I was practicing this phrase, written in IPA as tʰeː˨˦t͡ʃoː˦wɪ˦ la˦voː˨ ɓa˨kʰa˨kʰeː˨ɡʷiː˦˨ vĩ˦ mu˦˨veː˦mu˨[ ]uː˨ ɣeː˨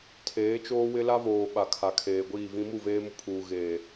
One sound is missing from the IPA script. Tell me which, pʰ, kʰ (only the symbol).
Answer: pʰ